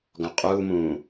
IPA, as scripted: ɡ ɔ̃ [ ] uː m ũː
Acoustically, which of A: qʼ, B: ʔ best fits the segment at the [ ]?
A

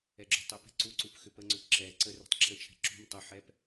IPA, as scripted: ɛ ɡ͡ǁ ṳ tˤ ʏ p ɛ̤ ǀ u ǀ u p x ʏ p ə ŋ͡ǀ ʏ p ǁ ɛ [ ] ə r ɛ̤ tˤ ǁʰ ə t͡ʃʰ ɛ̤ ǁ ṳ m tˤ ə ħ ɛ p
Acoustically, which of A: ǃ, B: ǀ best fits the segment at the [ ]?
B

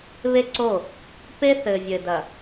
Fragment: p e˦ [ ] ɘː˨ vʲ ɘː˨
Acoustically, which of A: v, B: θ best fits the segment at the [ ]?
B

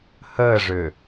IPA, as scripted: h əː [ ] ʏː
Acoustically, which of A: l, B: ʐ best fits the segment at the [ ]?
B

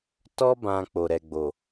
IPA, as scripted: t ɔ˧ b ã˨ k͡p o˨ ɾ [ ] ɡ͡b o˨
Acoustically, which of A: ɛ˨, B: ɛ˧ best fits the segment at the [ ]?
A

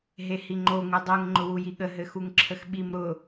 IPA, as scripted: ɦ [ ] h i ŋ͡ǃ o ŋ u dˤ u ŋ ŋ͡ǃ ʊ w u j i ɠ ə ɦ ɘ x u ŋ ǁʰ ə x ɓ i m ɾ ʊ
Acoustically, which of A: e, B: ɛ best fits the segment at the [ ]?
A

